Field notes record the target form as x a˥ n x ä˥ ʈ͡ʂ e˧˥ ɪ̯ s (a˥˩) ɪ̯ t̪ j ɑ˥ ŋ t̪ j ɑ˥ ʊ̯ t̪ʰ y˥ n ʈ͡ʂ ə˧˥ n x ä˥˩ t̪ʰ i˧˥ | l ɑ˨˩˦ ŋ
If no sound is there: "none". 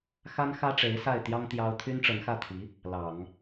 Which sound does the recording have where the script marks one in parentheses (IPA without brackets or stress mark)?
a˥˩